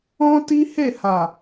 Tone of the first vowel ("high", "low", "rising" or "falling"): high